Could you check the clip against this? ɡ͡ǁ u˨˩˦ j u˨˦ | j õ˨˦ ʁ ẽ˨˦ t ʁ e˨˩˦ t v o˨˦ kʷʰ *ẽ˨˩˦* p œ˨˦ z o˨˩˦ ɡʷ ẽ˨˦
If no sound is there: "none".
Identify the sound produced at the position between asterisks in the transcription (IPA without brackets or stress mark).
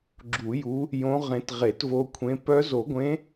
ẽ˨˦